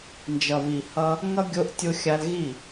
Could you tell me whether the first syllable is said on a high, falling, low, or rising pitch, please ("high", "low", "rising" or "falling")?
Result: low